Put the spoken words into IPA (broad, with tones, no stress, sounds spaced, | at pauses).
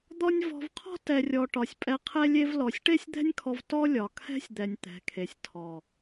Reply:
d̪ ɔ˦ nʲ v ɔ̤˧ v qʰ ɔ̤˦ t ɛ˨ rʲ ɔ˨ ʈ ɒ˨ sʲ pʼ ɛ˧ qʰ ɛ˦ lʲ e˦ v l ɔ˨ sʲ ʈ e˦ sʲ d̪ ɛ̤˦ nʲ kʰ ɔ˧ v t ɔ˦ lʲ ɒ˨ kʰ ɛ̤˦ sʲ d̪ ɛ˨ nʲ t̪ ɛ̤˨˦ kʰ e˨ sʲ tʰ ɔ˨